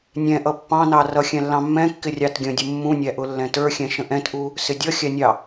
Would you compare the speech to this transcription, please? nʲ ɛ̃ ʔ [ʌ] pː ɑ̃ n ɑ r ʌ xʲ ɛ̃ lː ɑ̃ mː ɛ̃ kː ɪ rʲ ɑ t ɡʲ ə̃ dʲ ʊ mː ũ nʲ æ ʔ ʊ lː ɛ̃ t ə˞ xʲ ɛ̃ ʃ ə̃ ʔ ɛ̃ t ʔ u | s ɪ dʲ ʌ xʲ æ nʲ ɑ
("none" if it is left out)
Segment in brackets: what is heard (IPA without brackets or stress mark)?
ʌ